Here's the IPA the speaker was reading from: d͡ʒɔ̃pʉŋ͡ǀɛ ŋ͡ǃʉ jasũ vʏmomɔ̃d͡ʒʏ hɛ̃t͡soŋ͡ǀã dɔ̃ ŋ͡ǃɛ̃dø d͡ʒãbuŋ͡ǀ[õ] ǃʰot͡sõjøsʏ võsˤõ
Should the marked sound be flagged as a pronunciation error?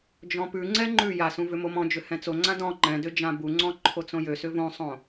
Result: yes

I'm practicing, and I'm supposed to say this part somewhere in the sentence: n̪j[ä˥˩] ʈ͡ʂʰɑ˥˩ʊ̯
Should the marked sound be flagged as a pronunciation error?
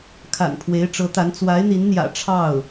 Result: yes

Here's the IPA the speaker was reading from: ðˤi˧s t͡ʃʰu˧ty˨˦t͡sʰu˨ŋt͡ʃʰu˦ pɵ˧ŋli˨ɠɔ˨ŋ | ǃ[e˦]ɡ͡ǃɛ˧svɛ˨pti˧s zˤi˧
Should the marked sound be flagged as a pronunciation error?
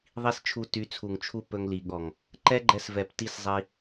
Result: yes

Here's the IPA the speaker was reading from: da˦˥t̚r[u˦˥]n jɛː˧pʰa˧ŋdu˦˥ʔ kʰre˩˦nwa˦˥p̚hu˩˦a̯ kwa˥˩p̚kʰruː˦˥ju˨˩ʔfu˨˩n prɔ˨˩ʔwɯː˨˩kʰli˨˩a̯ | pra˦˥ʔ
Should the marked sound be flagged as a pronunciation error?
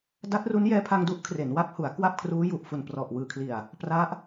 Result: no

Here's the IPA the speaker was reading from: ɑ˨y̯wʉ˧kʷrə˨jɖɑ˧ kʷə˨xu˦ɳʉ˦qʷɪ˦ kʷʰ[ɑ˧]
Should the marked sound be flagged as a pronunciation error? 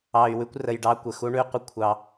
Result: no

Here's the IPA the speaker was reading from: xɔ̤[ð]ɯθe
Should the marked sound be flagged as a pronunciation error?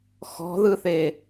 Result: no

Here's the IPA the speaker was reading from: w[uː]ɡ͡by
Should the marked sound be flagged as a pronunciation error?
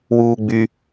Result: no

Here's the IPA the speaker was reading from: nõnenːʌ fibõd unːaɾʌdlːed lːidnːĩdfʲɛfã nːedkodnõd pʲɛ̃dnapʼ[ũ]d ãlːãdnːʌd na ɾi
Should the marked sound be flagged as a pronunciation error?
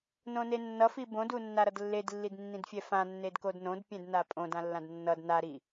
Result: yes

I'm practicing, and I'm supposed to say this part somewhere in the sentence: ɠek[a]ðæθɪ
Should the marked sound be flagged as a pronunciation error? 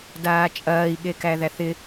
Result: yes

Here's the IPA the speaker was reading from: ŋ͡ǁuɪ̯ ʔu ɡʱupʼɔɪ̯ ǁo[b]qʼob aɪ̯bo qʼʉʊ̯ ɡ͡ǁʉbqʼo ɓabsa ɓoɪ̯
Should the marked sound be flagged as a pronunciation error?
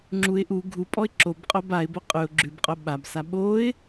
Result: no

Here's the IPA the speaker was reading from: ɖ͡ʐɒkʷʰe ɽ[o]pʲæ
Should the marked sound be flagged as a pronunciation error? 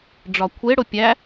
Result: no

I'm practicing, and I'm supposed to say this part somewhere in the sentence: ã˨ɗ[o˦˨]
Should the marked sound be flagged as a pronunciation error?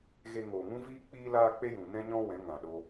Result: yes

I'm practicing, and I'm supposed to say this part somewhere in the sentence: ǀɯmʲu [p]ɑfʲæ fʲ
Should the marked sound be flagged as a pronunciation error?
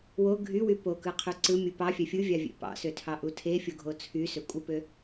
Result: no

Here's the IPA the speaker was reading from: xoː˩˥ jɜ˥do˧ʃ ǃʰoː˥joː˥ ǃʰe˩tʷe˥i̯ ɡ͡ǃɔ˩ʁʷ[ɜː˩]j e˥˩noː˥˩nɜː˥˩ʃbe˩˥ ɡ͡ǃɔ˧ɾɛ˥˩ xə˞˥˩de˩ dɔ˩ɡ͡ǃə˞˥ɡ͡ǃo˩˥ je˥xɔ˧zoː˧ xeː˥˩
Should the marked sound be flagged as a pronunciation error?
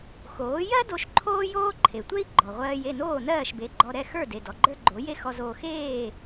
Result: yes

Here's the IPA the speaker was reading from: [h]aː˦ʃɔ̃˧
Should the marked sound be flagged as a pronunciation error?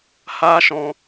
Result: no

